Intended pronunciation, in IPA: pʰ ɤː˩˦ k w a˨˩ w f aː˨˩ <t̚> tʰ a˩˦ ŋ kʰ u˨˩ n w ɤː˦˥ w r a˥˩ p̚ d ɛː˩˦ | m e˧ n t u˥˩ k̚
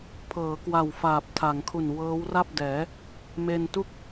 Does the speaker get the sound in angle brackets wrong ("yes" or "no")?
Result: yes